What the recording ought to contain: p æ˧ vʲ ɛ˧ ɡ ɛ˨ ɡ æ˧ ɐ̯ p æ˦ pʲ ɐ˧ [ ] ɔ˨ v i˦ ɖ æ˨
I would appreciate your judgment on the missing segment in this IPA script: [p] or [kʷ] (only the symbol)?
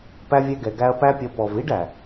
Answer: p